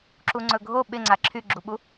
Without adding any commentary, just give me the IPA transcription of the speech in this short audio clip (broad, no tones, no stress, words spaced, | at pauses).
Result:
ǁuŋ͡ǀɵɡʱo ɓɪŋ͡ǀa ǁʰyɡ͡ǁuɓu